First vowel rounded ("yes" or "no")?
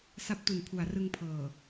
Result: no